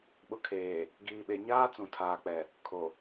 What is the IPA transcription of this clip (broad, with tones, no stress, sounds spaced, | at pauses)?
ɓ ʊ˨ kʰ eː˨ | ɡ iː˨ ɓ e˨ ɲ aː˦ t͡s ũ˨ tʰ aː˨ k͡p ɛ˨ | kʰ o˨